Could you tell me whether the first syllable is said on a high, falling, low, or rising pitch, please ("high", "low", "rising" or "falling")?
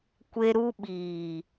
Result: high